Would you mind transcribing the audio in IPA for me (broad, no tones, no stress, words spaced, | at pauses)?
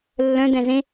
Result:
lːœ̃ dɛ̃zẽ